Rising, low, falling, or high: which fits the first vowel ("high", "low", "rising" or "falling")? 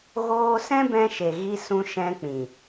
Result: high